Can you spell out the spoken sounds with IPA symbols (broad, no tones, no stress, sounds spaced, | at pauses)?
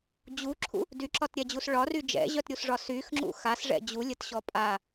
d͡ʑ u ǁʰ ṵ | d y ǁ ɒ t ɾʲ ɛ d͡ʑ u s ɭ ɒ r y d͡ʒ ɛ̰ ʑ œ t ɾʲ u s ʐ ɒ s y x ŋ͡ǁ ṵ x a s ʐ ɛ̰ d͡ʑ u lʲ ə t ɕ ɔ pʼ a